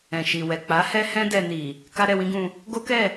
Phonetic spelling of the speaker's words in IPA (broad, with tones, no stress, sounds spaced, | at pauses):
ɛ̃˨ ʃ i˨ w ɛ˨ k͡p a˨˦ h ɛ˦ h ɛ̃˦ d ɛ˧ n i˨ | k a˦ ɾ ɛ˧ w ĩ˦ ɡ ũ˧ | ɡ o˦ k ɛ˦˨